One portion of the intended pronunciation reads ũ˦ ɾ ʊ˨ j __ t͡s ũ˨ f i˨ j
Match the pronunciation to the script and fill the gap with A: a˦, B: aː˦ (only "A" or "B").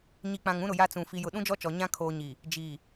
A